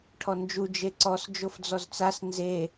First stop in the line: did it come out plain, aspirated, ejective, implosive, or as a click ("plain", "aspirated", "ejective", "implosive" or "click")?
aspirated